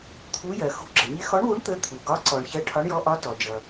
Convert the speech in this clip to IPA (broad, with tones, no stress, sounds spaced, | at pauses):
t̪ʰ u˨˥ j ɜ˩ x ṳ˨˥ ɡ͡ǁ ə˩ ɲ ɪ˨˥ x ɔ˨˥ ɳ w u˨˥ ɳ t̪ ə˨˥ t̪ʰ u˩ ɡ ɒ˨˥ ǀ ɔ˩ ɳ ç ɜ˨˥ ʈʰ ɒ˨˥ ɳ j ɔ˨˥ ʔ ɒ˨˥ t ɔ˩ d͡ʒ ʌ˩